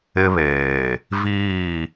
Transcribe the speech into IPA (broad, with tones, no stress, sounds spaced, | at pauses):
ɪ˦ β eː˨ | v iː˦˨